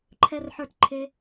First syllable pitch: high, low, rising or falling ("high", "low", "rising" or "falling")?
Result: high